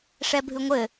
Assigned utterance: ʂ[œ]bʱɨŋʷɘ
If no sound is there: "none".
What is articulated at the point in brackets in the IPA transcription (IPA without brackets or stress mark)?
ɛ